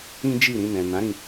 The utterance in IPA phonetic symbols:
ĩ˦ d͡ʒ i˦˨ ɾ ĩ˧ n ɛ̃˨ n ã˨˦ ɾ ĩ˧

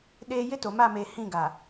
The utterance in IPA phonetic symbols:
ɗ eː˦ j ɪ˦ t o˨ m a˦˨ m eː˨ h ĩ˦˨ ɡ a˨

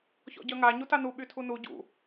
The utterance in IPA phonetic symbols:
ç ɔ̰ ɟ œ ŋ a ɲ u t a n u ɓ y tʰ u n u ɟ ṵ

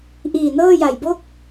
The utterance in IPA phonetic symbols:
ʔ iː˨˩ n ɤː˥˩ j a˨˩ j b o˥˩ k̚

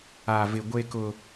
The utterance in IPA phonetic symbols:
a˨ v ɪ˨ ɡʷ e˦ k ʊ˦

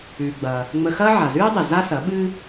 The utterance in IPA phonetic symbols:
ʉː˩ ɡ͡b ɐː˩ | ŋ͡m ə˧ x ɐː˥ ʕ a˩ z ʉː˥ dˤ e˩ z a˥ s ɐ˩˥ ɓ ɨː˥

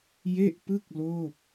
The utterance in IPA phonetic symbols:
j e˥˩ ʔ p ɯ˥˩ k̚ l oː˥˩ p̚

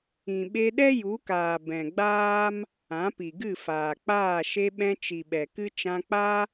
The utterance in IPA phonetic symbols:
ĩ˨ ɓ e˧ ɗ ɛ˦ j u˨˦ k aː˨ b ɛ̃˨ ɡ͡b aː˦ m | ã˨˦ p i˨ ɡ ɨ˦˨ f aː˨ k͡p aː˦˨ ʃ e˧ ɓ ɛ̃˧ t͡ʃ i˨ ɓ ɛ˨ k ɨ˦ t͡ʃ ã˧ k͡p a˦

